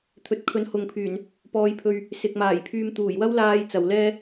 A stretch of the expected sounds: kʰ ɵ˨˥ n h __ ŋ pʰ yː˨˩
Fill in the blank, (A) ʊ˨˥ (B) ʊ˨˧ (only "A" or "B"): B